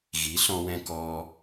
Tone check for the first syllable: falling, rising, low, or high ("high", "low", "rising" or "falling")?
rising